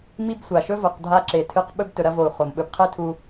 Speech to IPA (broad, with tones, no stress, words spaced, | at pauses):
mi˥bsʷa˩ʃɵ˥ vo˨qdʱa˥ ǁe˨tʰɨ˦q ɓɵ˥b tɵ˩ɾɐ˥vo˩u̯ χo˩m ɓɵ˨bqʰe˦tʰu˨